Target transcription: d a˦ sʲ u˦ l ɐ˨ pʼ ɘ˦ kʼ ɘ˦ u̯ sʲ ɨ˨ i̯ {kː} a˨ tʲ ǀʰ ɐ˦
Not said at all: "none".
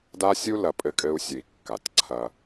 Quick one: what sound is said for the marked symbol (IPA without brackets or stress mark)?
kː